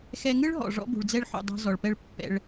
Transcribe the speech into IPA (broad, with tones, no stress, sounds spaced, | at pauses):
x ɛ˧ ŋ ɯ˥ ɭ ɦ ɔ̰˩ ʐ ɔ̰˥ b ṳ˩ ɭ d͡z ɛ˥ ɭ ħ ṵ˩ dˤ o̤˧ z ɔ˩ ɭ p ɛ˥ ɭ pː ɛ̰˧ ɭ